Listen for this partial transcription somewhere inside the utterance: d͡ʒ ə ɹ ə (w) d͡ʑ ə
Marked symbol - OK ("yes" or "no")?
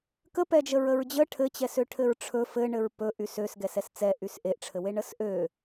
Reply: no